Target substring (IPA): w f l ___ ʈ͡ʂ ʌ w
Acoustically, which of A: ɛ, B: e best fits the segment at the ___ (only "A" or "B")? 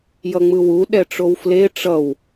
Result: B